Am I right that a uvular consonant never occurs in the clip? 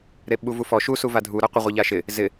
no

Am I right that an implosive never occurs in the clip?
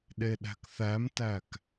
no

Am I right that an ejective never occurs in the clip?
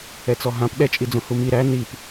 no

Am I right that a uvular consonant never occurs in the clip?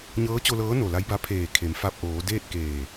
yes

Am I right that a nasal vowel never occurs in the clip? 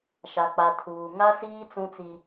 no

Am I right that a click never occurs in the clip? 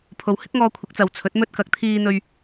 yes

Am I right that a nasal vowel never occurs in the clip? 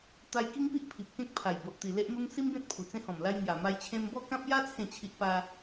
no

